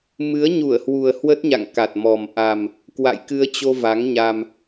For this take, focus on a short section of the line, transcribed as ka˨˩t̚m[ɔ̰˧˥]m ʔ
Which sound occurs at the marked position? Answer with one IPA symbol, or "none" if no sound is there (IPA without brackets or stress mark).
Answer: ɔ˨˩